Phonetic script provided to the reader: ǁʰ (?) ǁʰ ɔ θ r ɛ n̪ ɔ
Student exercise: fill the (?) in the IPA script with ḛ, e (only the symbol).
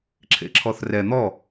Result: ḛ